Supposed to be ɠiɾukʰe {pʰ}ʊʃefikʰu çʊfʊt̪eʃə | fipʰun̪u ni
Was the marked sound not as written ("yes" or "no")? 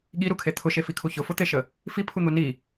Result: yes